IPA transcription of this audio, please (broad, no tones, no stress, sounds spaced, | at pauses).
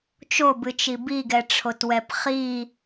t͡ʃ o b ɨ t͡ʃ i b i ɡ ɛ ʈ͡ʂʰ o t w ɛ p χ i